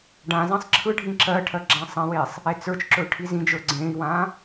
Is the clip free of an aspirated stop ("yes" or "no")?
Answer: no